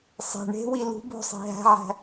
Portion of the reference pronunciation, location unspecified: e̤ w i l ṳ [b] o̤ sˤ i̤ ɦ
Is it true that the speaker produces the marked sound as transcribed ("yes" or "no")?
yes